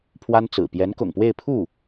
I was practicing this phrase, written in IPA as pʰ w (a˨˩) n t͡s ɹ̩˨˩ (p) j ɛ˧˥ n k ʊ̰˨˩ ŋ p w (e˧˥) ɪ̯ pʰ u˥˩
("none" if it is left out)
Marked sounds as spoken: a˥, p, e˥˧

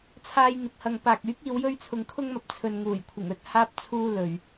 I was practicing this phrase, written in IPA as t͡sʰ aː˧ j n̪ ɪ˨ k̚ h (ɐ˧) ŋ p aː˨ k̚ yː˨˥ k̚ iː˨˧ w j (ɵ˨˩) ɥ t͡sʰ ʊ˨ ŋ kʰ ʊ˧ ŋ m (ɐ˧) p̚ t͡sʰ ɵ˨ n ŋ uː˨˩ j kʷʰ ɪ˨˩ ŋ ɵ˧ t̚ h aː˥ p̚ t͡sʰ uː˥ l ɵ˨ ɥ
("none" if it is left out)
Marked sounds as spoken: ɐ˨, ɵ˧, ɐ˨

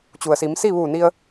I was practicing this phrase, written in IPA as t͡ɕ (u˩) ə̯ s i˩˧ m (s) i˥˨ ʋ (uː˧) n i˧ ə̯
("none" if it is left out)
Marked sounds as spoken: u˩, s, uː˧˩

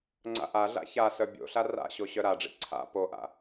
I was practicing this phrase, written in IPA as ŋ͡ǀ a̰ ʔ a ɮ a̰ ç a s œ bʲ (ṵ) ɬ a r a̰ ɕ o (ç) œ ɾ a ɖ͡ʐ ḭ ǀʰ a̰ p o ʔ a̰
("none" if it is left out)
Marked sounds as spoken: o̰, ɕ

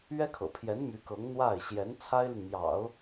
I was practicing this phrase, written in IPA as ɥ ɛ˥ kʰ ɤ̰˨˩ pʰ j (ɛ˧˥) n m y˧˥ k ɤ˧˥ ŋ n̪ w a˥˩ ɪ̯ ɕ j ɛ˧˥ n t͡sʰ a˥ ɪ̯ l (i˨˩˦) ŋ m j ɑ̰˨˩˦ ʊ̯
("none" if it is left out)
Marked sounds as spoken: ɛ˧˥, i˨

